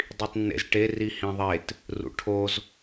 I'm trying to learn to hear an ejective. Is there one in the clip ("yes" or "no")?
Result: no